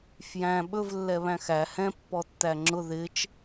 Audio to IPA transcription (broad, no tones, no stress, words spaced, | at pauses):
fjæ̃ ɓɵvlːɛ βæ̃xæ hɛ̃ pːɔtːæŋ͡ǁʊ ðɪt͡ʃ